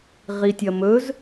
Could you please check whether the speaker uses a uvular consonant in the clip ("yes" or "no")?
yes